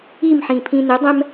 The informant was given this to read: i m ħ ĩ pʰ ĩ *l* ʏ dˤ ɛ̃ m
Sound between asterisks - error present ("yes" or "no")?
yes